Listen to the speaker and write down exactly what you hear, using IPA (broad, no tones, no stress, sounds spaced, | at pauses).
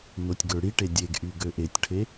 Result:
n o tʲ ɡ ø ɽ i ʈ e dʲ e ɡ ʔ y ɡ ø ʔ e tʲ ʈʰ e